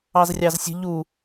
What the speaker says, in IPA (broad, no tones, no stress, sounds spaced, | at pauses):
ɑ z rʲ ɑ z sʲ ə̤ ʎ u